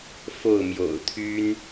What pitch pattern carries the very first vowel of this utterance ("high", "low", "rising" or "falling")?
falling